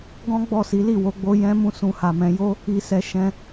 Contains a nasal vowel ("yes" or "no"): yes